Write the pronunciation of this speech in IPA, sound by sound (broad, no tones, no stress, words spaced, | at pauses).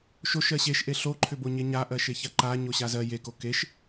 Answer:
ʃoʃɜ ɕeʃʔe ɬoǃʰʏboɲe ɲaʔɜʃeça ǃa ɲoɕazɜ jeko keʃ